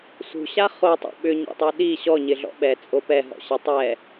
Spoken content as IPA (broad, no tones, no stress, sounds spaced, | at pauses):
s ṳ ɕ a χ o tˤ o̰ ɓ ʏ ɲ ɛ̰ tˤ u ɗ i ɕ ɔ ɲ ɪ ɮ ɔ̰ ɓ ɛ t͡sʼ o p ɛ ɦ ɔ̰ ɕ ɪ tˤ ɛ